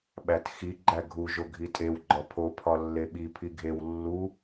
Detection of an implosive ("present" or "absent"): present